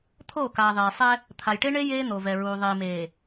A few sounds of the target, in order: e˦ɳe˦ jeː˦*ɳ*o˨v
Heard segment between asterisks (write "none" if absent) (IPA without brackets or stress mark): n̪